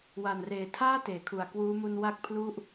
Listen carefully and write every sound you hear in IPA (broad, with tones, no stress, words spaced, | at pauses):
wa˨˩nreː˨˩tʰaː˥˩ teː˩˦kʰu˨˩a̯kwuː˦˥ mu˧nwa˦˥k̚pʰlu˦˥ʔ